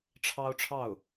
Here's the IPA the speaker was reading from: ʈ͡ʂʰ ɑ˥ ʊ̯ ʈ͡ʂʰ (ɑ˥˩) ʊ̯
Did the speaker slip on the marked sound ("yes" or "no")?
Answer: no